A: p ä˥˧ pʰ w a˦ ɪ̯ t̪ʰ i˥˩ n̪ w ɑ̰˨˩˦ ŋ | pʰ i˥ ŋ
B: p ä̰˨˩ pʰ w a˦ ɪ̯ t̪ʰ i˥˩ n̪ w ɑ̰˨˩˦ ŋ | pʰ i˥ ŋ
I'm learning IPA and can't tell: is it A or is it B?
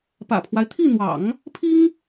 B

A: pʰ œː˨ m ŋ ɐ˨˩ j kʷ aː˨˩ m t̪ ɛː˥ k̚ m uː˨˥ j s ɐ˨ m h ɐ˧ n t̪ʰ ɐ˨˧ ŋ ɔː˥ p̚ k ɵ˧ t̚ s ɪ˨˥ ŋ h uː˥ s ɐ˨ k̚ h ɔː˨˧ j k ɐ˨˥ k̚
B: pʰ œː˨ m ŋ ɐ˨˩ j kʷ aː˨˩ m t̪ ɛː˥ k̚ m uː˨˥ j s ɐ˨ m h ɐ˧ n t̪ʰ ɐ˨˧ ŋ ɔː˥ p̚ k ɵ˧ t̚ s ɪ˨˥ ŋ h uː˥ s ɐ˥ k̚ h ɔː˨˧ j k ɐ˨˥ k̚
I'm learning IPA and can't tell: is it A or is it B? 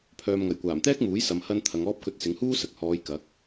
A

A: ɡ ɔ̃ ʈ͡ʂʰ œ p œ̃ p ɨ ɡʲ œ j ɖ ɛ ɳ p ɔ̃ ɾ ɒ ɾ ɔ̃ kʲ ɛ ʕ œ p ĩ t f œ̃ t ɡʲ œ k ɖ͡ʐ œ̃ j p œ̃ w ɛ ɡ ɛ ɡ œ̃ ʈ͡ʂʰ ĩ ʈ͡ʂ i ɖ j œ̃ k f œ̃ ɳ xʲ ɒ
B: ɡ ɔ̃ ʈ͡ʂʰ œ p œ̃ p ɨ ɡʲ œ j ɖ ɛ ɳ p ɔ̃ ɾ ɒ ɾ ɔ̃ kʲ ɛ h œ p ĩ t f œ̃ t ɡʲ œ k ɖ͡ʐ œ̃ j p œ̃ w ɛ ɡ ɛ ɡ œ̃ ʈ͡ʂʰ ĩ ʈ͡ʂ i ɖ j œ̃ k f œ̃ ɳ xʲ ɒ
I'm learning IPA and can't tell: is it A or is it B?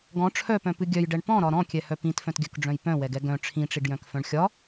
B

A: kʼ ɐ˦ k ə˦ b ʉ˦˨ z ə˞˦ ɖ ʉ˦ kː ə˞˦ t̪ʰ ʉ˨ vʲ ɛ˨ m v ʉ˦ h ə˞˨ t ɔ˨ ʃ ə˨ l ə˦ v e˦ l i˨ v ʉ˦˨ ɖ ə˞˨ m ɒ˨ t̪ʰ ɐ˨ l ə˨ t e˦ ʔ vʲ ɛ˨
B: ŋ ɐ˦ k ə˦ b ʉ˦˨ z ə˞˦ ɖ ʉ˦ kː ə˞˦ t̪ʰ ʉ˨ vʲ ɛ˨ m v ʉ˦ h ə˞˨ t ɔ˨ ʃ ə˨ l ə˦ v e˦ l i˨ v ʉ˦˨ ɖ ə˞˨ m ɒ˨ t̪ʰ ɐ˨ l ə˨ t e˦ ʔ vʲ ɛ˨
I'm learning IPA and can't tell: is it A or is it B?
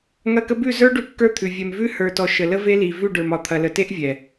B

